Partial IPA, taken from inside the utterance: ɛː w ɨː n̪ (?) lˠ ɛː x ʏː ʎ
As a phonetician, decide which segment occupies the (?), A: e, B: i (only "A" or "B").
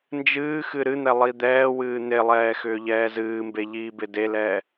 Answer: A